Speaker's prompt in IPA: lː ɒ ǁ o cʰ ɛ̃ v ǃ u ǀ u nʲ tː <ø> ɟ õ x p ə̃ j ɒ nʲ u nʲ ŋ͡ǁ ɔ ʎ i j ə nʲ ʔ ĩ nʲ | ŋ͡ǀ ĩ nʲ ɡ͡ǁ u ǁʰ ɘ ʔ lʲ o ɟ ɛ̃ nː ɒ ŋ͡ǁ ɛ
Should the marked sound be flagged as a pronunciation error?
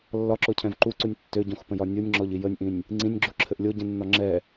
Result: no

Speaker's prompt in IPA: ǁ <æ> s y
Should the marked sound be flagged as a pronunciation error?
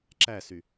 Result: no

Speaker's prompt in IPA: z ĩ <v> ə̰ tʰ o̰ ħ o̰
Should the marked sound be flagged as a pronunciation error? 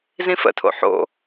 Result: yes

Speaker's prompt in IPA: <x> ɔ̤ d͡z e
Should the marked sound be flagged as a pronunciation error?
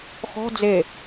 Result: no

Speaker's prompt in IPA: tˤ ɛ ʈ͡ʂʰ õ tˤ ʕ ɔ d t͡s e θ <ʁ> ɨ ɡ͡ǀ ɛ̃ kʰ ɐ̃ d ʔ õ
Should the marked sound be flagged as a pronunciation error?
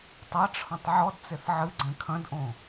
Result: yes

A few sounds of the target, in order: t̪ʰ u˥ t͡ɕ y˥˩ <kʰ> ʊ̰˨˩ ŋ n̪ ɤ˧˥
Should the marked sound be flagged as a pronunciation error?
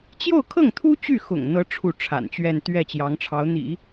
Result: yes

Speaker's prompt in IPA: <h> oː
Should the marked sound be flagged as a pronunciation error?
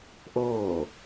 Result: yes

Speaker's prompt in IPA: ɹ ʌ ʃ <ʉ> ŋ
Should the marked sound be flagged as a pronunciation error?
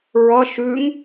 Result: no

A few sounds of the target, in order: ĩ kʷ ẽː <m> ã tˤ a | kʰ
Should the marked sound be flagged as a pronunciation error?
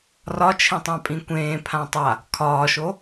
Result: yes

